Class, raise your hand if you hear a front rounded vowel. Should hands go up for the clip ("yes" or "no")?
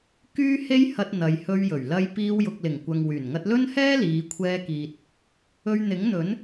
yes